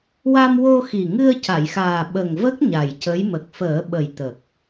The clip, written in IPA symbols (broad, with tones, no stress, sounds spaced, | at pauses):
w a˧ m w o˧ x i˨˩ ŋ ɨ˧ ə̯ c a˨˩˨ j x aː˨˩ ɓ ə˨˩ ŋ v ə˦˥ k̚ ɲ a˨˩ j c ə˧˥ j m ə˨˩ k̚ f əː˨˩˦ ɓ ə˨˩ j t̪ ə˨˩ k̚